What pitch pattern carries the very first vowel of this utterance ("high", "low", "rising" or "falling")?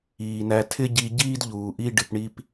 low